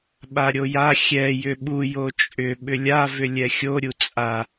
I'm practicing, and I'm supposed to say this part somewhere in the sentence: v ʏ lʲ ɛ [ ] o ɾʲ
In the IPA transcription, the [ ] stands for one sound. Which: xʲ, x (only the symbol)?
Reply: xʲ